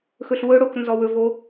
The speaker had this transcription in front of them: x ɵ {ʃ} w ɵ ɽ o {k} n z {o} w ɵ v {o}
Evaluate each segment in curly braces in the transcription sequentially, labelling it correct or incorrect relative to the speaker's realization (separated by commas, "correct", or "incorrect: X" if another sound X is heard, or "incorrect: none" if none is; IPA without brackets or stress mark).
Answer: incorrect: ɬ, correct, incorrect: ɔ, correct